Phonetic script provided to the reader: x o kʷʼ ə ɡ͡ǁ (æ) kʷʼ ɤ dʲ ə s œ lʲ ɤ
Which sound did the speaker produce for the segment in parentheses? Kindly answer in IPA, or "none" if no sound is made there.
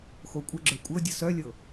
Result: œ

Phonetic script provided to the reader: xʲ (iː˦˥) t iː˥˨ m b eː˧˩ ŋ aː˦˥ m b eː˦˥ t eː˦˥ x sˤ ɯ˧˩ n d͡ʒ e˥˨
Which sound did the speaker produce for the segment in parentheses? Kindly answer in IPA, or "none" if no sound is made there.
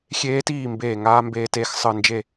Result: eː˦˥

